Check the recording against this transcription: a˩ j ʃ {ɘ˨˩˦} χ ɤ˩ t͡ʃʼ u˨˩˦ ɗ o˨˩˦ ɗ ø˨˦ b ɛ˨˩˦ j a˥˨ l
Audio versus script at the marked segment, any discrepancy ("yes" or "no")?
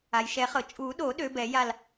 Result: yes